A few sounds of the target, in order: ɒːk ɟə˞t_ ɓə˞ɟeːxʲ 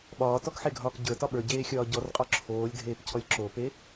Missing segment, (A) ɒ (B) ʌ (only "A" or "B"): A